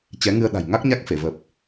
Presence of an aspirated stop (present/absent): absent